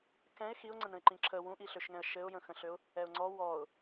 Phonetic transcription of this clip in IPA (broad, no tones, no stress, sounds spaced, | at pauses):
k ɛ̃ ɪ̯ x i ʊ̯ ŋ͡ǀ ə̃ n ə̃ ɪ̯ ǃ ĩ ǁʰ ə w ũ ʔ i ɬ ø ʃ ŋ ɛ̃ ə̯ ʃ ɘ ʊ̯ j ə̃ x ə̃ ɬ ø ʊ̯ | ɛ ʊ̯ ŋ͡ǀ ɔ w ɔ ʊ̯